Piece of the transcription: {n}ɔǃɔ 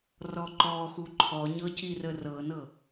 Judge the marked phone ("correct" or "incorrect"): incorrect